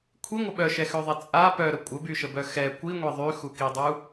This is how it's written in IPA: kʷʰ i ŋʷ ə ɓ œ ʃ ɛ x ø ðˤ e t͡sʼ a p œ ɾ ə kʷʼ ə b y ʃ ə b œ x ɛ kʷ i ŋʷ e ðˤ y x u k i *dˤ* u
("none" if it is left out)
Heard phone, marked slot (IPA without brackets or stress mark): dˤ